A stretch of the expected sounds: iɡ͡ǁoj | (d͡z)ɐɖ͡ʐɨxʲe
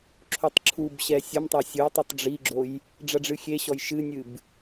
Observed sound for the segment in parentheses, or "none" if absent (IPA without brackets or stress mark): ɖ͡ʐ